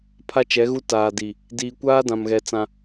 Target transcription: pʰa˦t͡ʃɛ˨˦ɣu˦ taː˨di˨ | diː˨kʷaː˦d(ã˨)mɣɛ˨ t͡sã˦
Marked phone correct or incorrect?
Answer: correct